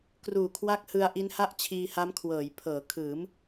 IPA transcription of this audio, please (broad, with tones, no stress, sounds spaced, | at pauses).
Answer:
k r uː˨˩ kʰ w a˦˥ k̚ h ɯ˧ a̯ ʔ i˦˥ n h a˥˩ ʔ t͡ɕʰ iː˧ h a˦˥ m kʰ w ɤː˩˦ j pʰ ɤː˩˦ kʰ ɯː˩˦ m